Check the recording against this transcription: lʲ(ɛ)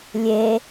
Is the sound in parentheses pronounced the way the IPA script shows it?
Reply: no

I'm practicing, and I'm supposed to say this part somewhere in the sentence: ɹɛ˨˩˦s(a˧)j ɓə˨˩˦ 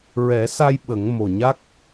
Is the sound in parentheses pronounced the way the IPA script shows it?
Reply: yes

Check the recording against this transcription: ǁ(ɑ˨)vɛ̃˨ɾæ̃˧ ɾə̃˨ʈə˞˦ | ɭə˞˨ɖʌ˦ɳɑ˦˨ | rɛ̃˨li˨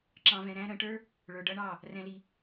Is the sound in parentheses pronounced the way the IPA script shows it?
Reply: no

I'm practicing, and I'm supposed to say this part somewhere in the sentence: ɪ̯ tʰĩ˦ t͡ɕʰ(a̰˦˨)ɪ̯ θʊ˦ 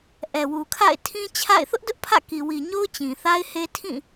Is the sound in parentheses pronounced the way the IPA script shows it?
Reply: yes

